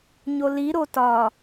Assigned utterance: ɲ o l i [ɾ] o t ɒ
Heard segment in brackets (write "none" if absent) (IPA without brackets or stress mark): ɾ